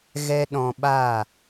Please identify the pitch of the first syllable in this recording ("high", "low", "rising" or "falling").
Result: high